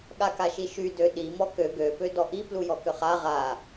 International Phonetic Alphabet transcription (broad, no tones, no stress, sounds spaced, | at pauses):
ɠ a k a ʃ i ʃ y d ø ɗ i m ɔ k ø ɡ ø p ø d ɔ ʔ i p l u j ɔ k ʏ χ a ʁ a